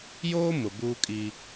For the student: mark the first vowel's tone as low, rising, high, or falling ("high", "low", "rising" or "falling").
high